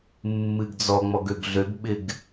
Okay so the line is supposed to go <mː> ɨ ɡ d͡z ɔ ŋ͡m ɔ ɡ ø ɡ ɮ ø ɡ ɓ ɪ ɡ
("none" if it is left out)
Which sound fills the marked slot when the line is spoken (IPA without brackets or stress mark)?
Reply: mː